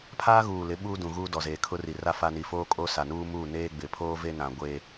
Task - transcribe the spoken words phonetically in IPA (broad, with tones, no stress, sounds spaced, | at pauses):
pʰ aː˦ ɣ uː˨ l ɪ˨˦ ɓ uː˦ d ũ˨ ɣ uː˦ d ɔ˨ z eː˨ kʰ ʊ˦ r i˨ r a˦ f a˦ n i˨ f oː˦ kʼ o˦ s a˨ n uː˦ m u˦˨ n eː˦ ɡ͡b ɪ˨ pʰ oː˦ v e˦ n ã˨ ɡʷ eː˨